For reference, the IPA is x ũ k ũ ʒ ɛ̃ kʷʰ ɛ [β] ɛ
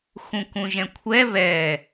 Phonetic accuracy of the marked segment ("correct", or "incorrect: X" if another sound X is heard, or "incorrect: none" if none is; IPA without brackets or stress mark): correct